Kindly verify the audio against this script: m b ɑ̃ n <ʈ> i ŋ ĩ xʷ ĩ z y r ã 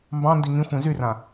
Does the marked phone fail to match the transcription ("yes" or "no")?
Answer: yes